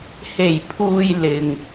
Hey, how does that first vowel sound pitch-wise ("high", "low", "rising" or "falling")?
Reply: low